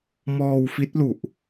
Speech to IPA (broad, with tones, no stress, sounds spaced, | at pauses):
m ɔː˧ w f i˦˥ t̚ l u˨˩ ʔ